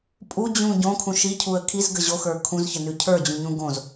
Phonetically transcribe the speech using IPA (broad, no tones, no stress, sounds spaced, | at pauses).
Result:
pʼ u d͡ʑ ũ ɟ õ kʰ ũ ʃ i cʰ u ə̯ kʰ i z ɡ ə ʑ o x ə˞ kʰ ũ z ç ə n ʉ cʰ ə˞ d͡ʑ ũ ɲ ũ ɡ õ z